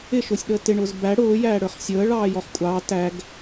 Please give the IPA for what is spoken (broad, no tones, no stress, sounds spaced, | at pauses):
ɪ ʃ ʊː sʲ ɗ əː t ɪ ɳ ʊː z b æ ɽ ʊː j æː ɽ ə˞ χ sʲ əː ɭ ɑː j ɔ χ kʷʼ ɑː t æ ɡ